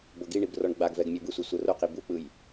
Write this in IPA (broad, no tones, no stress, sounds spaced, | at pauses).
b ɤ ɡ i ɳ i b r ɔ ɳ ɡ͡b a ɡ v ɛ ɡ mʲ o b ɯ sʷ i sʷ ɤ r o q i b u k͡p ɯ j